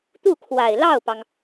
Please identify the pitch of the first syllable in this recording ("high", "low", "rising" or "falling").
falling